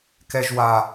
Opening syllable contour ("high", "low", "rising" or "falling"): high